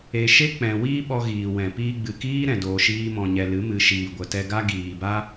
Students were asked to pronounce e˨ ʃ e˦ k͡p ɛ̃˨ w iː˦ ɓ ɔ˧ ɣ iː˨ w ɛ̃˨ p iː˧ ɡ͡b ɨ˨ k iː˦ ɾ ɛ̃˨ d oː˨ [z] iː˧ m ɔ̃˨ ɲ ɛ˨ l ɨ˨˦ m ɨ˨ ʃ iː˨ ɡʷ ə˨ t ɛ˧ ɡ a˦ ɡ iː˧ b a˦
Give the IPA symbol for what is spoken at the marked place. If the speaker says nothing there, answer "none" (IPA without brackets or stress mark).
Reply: ʃ